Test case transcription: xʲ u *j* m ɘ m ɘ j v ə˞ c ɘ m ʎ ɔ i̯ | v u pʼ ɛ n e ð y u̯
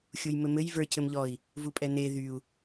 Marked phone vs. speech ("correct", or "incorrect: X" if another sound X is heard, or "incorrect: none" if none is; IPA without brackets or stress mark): correct